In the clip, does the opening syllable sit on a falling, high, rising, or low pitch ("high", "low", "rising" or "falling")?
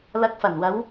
rising